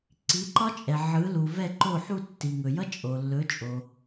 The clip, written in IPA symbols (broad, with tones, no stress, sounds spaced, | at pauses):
ǀ i˩˥ ǃ ɒ˥ t͡ʃʼ ɛ˩ ʕ ɯ˩˥ l u˩ v ɛ˥˩ ǃ o˥˩ ħ u˥˩ tː i˩ ŋ ɵ˩ j ʌ˥ t͡ʃʼ o˩ lː ɵ˩˥ t͡ʃʼ o˩